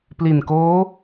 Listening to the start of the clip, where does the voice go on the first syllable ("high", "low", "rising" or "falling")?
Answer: low